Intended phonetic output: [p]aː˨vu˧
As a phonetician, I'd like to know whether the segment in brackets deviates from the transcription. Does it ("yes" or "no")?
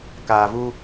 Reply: yes